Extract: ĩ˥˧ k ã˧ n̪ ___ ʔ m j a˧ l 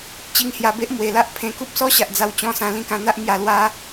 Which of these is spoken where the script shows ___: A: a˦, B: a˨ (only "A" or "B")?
A